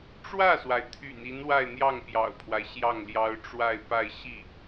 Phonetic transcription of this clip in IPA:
ʈ͡ʂwä˥˩swa˩ɪ̯ t̪ʰy̰˨˩ni˧˥n wa˥˧ɪ̯n̪jɑ˥˩ŋpjɑ̰˨˩ʊ̯pʰwa˦ɪ̯ ɕjɑ˥˩ŋljɑ˥ʊ̯ ʈ͡ʂwa˥˧ɪ̯pa˥˧ɪ̯ ɕi˥˩

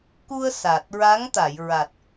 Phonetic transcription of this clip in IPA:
ku˧ə̯ sa˨˩t̚ ɹa˧˥ŋt̪a˨˩˨jɹa˨˩t̚

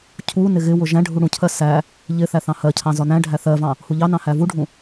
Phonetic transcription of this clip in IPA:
cʰunɪ ɣɪwʊ ʒæ̃ɖʱu ɽũcʰɜ sæ | ʎɪ θæθɑ̃hɜcʰɑ̃ zɒnæ̃ɖʱæ θɜvɑ̃ | huʎɑnɑ̃ hævuɖʱũ

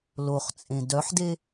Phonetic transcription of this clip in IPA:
loχt͡sʼẽ dœħde

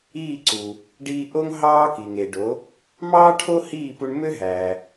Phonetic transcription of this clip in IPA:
iː˥˩ǀu˩ | ɖiː˧ ʔo˥ŋ ɦɑː˥ki˩ŋe˩ɖo˩˥ | mɑː˥ʈʰo˥ hiː˥˩pu˧ɳ mø˥ɦæː˩

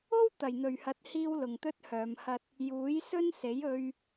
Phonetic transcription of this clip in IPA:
o˥w t̪ɐ˨˩jn̪ɵ˨˩ɥhɐ˨˥t̚hiː˧w lʊ˨ŋt̪ɵ˥t̚hœː˨˧m hɐ˧t̚ | juː˨˥jsɵ˥nse˨˥j ɵ˥ɥ

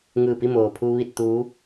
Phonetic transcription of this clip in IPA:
ŋɯː˧˩pi˥˨moː˩pʰu˧ ʋi˥˨t̚t̪uː˧˥

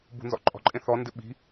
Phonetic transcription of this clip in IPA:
bṳnzɔ̰ǃʼɔ̤ǃʼẽ θɔndɪ ɓi̤

